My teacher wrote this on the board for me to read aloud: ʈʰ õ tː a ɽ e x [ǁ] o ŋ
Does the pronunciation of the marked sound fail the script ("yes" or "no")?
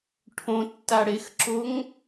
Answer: no